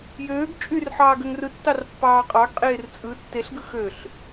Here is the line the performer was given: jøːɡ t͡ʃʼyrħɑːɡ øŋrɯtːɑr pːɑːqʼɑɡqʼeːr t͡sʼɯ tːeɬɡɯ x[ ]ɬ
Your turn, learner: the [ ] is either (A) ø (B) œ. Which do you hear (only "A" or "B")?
A